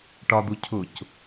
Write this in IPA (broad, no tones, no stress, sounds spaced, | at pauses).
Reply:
ʈ ɒ d̪ u cʰ ʊ c